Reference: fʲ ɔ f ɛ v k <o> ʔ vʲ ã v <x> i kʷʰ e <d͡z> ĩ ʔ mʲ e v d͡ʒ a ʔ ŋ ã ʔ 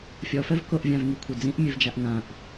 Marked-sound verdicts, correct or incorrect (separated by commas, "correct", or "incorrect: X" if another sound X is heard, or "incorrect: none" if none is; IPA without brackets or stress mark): correct, incorrect: ŋ, correct